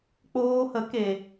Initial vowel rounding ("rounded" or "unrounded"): rounded